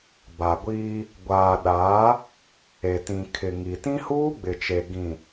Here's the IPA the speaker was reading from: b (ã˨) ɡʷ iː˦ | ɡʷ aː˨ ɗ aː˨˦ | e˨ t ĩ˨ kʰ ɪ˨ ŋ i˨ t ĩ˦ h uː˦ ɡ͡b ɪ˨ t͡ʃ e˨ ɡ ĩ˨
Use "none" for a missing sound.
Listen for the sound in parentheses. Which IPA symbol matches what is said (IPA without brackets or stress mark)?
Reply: a˨